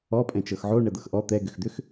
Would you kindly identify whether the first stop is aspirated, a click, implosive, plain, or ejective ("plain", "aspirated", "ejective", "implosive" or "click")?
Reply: ejective